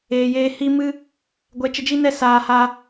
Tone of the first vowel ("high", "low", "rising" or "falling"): low